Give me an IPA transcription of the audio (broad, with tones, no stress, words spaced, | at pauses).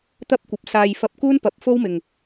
t̪ɐ˥p̚kʷɐ˨˥p̚saː˧j fɐ˧p̚kuː˥npɐ˨˥p̚ fo˥wmɪ˨ŋ